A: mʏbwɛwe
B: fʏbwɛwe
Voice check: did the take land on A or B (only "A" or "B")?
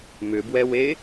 A